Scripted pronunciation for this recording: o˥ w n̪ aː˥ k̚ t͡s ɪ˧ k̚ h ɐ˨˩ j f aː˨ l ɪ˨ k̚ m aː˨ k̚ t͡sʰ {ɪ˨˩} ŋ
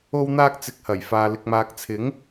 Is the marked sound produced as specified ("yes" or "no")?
no